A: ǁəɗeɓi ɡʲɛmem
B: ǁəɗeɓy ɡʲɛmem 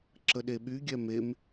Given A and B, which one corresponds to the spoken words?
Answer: B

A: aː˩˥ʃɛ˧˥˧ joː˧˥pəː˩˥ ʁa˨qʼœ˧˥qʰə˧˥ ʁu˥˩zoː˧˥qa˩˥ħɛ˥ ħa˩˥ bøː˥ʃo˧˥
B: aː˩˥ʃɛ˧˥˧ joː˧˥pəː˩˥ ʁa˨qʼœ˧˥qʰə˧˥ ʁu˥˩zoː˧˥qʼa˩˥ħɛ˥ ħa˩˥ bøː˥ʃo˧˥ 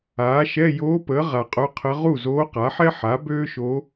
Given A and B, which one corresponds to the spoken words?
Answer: A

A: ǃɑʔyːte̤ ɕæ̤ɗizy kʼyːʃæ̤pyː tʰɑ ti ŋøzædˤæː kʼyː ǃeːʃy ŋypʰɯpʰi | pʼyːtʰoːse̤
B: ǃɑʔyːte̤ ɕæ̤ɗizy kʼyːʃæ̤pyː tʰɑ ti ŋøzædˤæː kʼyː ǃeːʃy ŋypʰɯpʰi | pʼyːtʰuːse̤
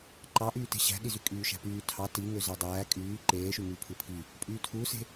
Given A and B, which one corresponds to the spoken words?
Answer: B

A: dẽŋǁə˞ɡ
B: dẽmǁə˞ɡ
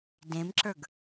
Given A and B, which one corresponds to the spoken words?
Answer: B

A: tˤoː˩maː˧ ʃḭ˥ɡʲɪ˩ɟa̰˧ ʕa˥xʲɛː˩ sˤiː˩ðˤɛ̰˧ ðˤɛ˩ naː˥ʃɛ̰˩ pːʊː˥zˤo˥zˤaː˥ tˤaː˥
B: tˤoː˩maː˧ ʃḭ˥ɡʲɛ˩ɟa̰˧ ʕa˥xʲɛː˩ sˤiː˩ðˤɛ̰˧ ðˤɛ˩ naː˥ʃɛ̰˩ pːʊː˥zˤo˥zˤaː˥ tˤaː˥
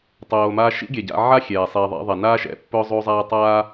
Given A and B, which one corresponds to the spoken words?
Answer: B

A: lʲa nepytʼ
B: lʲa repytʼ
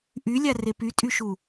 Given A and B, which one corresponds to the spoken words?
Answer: B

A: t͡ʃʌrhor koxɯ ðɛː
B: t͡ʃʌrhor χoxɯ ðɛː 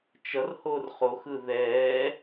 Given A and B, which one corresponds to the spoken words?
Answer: B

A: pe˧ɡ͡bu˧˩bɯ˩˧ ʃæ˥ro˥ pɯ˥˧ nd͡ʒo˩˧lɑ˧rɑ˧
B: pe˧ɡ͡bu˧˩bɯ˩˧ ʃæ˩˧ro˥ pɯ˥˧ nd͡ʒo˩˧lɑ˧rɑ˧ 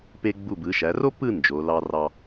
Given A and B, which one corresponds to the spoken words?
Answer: B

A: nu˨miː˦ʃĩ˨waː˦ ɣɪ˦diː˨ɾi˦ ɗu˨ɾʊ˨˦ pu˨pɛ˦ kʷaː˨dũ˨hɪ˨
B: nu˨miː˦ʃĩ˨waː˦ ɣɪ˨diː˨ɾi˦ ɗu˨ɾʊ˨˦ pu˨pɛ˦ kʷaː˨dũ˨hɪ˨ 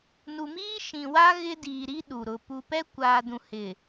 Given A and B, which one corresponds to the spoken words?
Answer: A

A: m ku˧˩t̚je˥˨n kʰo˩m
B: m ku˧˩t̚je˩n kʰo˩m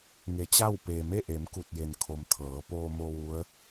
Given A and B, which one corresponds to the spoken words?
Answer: B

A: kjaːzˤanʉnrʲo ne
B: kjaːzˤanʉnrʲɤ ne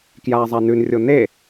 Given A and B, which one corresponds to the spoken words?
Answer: A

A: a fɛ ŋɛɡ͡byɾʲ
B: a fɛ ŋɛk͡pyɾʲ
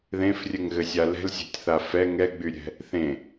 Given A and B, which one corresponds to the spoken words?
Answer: A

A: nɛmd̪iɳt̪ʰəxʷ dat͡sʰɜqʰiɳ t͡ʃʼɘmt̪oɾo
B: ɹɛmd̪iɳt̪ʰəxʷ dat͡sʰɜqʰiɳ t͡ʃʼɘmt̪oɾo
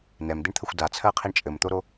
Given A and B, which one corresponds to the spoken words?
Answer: A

